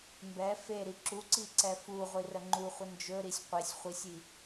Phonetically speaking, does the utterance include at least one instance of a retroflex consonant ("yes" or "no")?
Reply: no